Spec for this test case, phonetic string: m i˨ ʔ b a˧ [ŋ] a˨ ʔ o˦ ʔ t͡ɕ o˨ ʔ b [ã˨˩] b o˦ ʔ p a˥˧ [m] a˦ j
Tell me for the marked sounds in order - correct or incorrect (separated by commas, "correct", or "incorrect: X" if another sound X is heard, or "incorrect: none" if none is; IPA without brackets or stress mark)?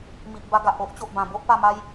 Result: incorrect: ɡ, correct, correct